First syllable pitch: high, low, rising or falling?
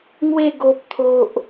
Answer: falling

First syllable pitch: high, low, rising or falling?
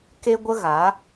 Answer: high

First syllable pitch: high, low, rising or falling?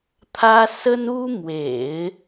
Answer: high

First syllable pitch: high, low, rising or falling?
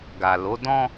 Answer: low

